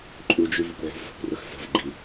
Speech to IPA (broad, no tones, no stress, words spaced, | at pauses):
ǃʼud͡ʒy vəkʷʕṳvzə̤kʷrəx sə̤v ɡ͡ǃi